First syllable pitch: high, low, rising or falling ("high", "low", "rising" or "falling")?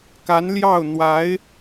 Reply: rising